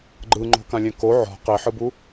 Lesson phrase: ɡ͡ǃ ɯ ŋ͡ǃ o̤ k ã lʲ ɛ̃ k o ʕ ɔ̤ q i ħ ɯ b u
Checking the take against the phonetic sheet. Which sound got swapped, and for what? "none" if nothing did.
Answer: none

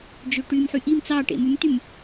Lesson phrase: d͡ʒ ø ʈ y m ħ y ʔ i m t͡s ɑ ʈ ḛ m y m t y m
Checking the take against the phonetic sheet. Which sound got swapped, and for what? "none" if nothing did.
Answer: none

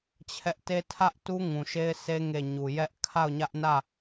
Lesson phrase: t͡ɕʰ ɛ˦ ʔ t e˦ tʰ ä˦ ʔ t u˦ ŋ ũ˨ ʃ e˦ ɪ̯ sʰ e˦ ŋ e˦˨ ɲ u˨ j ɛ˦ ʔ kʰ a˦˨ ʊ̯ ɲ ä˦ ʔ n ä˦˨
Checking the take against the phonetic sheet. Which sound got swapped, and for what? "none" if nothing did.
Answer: none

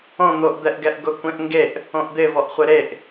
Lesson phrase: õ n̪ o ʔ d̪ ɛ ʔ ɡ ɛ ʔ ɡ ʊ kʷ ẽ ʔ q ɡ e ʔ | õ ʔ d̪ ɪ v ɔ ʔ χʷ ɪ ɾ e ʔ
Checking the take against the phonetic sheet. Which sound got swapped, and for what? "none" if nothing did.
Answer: q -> ŋ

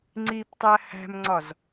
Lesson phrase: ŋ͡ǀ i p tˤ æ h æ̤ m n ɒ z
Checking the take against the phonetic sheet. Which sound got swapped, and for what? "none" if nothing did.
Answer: n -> ŋ͡ǀ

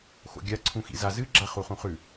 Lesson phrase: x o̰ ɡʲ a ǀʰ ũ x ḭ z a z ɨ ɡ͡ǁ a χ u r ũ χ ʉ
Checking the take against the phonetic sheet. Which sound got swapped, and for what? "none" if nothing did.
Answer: r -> χ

